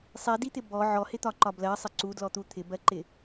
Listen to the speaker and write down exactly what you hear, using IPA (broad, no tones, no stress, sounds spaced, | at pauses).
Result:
sˤ i d i t̪ ɪ b ɔ ʕ ɔ h ɪ t̪ ɒ ǃ ɒ b l ɜ sˤ ɪ ǀ u d l ɔ t̪ u t̪ʰ ɪ b ɜ ǃ ɪ